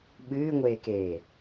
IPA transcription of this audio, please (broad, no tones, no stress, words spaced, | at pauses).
ɓɨːŋʷeːkeː